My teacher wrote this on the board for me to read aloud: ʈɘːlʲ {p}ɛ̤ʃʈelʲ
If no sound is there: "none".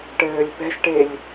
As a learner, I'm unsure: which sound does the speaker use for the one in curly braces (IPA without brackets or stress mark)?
p